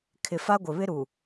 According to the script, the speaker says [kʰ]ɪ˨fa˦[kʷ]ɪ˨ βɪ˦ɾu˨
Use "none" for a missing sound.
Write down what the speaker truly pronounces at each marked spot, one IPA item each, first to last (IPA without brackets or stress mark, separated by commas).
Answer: kʰ, ɡʷ